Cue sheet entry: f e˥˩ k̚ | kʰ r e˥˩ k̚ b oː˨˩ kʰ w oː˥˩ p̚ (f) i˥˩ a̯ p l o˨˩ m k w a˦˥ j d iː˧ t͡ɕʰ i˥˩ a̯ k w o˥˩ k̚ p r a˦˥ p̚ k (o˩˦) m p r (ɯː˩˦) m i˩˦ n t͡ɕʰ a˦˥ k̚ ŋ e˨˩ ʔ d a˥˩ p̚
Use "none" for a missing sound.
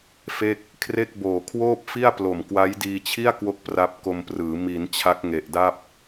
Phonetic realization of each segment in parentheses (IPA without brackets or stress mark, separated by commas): f, o˧, ɯː˩˦